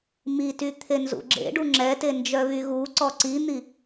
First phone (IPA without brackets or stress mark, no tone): m